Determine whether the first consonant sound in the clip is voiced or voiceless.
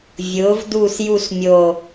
voiced